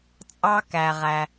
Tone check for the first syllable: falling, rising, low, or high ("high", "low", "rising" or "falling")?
high